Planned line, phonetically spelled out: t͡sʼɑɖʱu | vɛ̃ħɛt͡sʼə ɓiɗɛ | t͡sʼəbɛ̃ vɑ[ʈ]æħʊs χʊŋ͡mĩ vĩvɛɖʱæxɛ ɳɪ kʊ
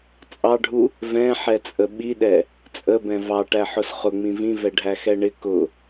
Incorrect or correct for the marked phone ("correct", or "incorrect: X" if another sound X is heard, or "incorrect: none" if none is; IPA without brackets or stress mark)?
correct